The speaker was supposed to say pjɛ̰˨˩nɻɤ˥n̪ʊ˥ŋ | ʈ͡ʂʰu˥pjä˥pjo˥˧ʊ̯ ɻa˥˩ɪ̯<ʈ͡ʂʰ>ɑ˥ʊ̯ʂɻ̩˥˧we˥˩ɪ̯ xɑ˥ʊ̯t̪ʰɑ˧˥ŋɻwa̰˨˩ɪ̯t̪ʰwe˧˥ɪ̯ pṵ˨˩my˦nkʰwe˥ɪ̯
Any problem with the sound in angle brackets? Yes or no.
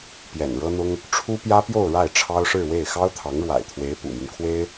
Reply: no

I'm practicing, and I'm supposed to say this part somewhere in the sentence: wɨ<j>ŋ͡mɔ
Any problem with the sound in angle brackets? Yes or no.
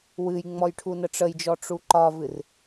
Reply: no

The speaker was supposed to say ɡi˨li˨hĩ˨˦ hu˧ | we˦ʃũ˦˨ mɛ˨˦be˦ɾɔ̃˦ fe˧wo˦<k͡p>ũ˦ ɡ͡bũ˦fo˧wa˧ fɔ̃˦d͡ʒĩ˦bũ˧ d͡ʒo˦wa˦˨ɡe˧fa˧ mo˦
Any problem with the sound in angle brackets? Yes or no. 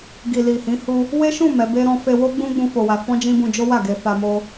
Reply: yes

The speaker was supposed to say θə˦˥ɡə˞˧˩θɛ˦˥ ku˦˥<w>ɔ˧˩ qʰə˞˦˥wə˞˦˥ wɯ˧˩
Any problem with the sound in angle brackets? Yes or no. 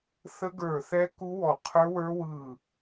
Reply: no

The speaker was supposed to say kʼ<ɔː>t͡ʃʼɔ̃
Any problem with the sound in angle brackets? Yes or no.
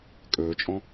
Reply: yes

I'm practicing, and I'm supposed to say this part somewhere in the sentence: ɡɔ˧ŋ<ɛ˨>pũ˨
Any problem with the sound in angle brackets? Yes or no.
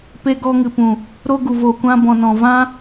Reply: yes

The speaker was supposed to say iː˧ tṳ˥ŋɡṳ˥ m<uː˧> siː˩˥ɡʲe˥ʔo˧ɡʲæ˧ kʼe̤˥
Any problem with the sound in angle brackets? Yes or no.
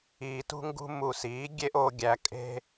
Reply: yes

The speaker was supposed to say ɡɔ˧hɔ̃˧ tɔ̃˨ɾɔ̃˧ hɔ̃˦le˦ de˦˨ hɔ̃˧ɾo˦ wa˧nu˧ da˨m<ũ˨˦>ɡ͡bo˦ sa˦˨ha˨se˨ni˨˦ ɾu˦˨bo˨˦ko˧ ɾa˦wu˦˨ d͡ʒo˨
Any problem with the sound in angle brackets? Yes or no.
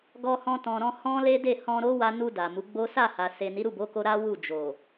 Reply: yes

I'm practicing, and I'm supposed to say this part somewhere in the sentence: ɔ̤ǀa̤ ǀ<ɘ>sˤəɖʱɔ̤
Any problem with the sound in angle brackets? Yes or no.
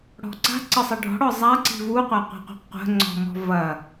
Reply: no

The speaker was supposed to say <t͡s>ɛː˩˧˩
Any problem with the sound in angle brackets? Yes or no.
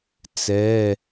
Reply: no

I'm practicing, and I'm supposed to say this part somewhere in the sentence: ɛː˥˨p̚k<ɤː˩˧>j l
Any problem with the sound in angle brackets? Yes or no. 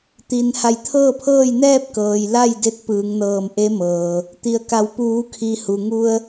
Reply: yes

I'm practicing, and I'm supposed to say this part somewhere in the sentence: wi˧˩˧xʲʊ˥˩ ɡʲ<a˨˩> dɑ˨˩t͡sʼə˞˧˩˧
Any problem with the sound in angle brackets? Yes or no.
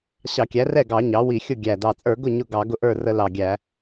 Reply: yes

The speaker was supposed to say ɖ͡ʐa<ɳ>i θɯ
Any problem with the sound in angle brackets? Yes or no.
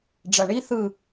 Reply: no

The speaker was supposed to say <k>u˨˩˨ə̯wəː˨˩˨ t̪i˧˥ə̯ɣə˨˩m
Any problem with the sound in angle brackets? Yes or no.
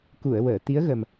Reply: no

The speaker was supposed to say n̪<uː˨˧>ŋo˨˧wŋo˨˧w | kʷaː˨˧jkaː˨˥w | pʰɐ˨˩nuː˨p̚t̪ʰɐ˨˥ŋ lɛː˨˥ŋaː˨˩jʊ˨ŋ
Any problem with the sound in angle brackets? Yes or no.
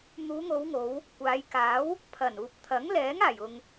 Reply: no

